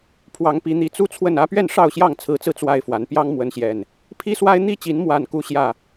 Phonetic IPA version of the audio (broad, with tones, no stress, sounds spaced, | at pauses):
pʰ w ɑ˨˦ ŋ p i˨˦ n̪ i˨˦ t͡s u˦ t͡sʰ w ə˥˨ n ä˦ p ɥ ɛ˥˨ n ʂ ɑ˥˨ ʊ̯ ɕ j ɑ˥˨ ŋ t͡sʰ ɹ̩˨˦ t͡s ɹ̩˧ t͡s w a˦ ɪ̯ f w a˨˦ n p j ɑ˦ ŋ m w ə˨˦ n ɕ j ɛ˨˩ n | pʰ i˦ s w a˦ ɪ̯ n̪ i˥˨ t͡ɕ i˨˦ n m w a˨˩ n k u˦ ɕ j ä˥˨